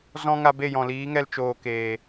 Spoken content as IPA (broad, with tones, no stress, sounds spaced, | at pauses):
z ɔ̃˦ ŋ a˧ b e˦˨ j ɔ̃˨ l iː˨˦ ŋ ɛ˧ l t͡ʃ oː˨ k eː˨